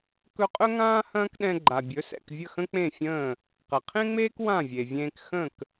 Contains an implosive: yes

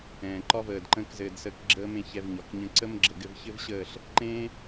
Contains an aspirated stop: no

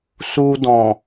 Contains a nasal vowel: yes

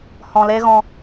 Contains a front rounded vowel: no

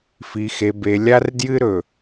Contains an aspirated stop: no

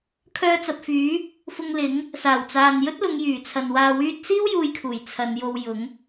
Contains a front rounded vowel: yes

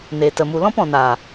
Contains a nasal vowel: yes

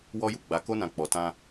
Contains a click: no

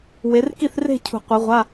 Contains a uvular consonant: yes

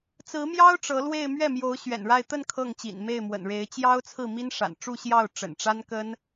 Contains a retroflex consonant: yes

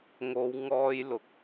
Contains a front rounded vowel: no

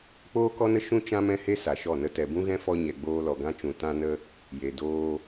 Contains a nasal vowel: yes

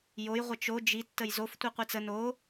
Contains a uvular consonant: yes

